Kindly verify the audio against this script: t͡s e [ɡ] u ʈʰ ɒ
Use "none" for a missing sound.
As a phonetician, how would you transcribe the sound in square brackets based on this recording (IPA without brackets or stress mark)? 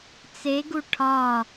ɡ